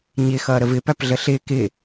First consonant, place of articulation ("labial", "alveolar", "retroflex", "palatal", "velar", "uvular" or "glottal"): palatal